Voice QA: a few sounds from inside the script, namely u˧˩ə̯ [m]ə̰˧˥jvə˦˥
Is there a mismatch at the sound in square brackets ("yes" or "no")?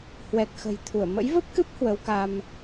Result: no